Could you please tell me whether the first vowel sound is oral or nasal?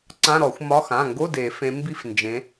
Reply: nasal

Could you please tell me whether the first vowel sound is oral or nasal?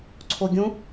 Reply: oral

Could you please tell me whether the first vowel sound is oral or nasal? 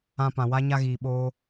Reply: nasal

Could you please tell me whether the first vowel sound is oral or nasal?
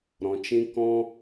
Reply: nasal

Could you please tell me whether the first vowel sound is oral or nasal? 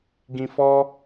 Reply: nasal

